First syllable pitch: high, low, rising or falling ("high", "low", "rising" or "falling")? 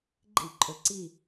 falling